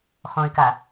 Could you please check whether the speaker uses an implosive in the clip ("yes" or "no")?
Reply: no